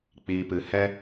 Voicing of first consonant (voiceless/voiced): voiceless